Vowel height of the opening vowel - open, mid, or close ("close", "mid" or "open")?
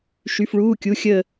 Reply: close